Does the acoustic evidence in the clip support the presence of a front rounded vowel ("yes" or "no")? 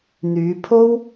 yes